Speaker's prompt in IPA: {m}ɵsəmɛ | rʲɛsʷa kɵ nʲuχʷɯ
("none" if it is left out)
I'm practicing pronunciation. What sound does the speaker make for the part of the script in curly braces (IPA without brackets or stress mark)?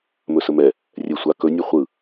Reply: m